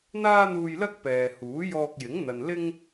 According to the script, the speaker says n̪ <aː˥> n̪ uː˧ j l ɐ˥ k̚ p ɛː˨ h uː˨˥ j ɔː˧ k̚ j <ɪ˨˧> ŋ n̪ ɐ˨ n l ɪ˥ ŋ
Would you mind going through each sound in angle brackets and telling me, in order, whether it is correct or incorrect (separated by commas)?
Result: correct, incorrect